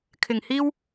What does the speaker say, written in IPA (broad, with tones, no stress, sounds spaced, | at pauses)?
kʰ ɪ˨˩ ŋ h iː˥ w